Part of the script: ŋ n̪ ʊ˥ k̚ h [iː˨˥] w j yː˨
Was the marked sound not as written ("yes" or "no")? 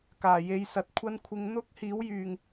no